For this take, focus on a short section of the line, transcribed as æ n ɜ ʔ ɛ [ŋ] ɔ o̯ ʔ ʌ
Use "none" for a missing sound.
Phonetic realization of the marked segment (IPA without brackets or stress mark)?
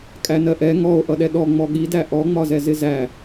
ŋ